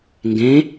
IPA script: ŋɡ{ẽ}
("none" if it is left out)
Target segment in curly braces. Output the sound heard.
ẽ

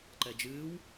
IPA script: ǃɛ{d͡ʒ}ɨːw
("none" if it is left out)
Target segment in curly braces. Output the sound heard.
d͡ʒ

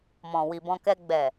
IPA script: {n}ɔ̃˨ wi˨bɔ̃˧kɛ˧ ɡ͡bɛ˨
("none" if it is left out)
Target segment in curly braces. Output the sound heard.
m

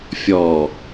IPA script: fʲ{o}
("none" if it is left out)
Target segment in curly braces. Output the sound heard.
ɔ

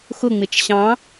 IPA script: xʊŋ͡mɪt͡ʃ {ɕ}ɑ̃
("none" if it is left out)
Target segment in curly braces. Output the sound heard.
ɕ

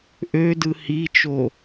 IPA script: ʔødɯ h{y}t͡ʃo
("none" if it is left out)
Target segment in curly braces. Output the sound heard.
i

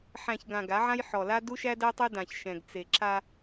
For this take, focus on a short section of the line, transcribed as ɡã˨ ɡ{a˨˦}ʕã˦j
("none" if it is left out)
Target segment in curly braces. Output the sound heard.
a˨˦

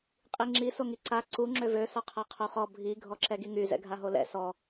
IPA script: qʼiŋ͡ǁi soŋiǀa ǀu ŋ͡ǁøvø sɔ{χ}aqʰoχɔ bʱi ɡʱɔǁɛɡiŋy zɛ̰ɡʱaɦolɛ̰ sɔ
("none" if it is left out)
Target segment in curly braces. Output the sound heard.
qʰ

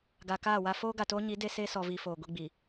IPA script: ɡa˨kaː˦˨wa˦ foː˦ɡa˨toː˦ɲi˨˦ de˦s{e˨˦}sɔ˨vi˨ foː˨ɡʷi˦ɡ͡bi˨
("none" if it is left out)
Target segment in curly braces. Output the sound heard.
e˦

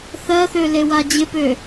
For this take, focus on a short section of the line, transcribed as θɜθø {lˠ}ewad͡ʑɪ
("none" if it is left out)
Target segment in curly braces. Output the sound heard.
l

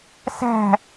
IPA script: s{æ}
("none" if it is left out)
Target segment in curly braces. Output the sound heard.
æ̤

